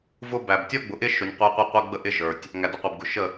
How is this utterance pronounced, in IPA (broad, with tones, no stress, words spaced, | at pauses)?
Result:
vʊ˦bæ˨b tʲɔ˦ɡ͡bʊ˨ʔɪ˦ʃʊ˨nʲ qʷæ˦qʷɛ˦qʷə˞˦ɡ͡bə˦ ʔɪ˦ʒə˞˨tʲ | ŋæ˨də˦qʷɛ˨bɡʊ˨ ʃə˦˨